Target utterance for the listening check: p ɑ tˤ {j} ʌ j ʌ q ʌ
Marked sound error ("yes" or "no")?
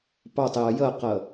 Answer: no